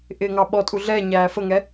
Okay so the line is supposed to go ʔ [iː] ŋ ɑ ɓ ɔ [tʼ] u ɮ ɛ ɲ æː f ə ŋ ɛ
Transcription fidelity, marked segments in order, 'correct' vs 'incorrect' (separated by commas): incorrect, correct